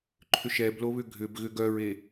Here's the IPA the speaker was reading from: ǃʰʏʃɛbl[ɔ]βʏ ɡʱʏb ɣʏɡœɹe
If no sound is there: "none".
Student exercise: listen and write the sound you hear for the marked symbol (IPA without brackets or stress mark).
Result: o